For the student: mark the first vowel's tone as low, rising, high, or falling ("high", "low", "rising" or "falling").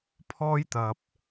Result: high